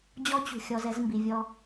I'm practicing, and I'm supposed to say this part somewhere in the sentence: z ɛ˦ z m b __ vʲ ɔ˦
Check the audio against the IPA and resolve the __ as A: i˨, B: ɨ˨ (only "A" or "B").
A